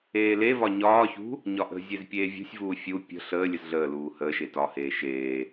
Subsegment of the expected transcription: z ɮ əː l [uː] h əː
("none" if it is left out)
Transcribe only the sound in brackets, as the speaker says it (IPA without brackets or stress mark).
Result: uː